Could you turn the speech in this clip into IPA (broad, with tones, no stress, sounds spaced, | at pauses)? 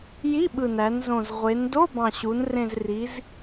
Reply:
j i˧˥˧ ɓ ɯ˨˩ n æ˩˧ n z õ˨˩ z ʁʷ e˩˧ n d o˧˥˧ b ɑ̃˨˩ ɕ u˩˧ n r ẽ˨˩ z r i˩˧ z